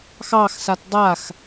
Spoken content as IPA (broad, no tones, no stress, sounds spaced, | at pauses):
x ɑ x s a t dˤ a x